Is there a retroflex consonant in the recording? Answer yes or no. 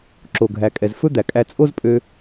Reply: no